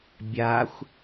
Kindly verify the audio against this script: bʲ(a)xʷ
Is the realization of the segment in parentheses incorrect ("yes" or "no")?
no